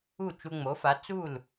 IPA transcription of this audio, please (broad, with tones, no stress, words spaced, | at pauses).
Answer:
u˥˩ t͡ʃu˧ŋ͡mo˩˥fa˩˥ t͡suː˥˩l